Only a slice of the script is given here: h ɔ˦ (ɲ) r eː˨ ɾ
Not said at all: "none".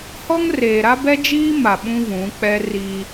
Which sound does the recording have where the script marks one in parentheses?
ŋ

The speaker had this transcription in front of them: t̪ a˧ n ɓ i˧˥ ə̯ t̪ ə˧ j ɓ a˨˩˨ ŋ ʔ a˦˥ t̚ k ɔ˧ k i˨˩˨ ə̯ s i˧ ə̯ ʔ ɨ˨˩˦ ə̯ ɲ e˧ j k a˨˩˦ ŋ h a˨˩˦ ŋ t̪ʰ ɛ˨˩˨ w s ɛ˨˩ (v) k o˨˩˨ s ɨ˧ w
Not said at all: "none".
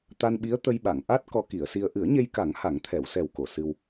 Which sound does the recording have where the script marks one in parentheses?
w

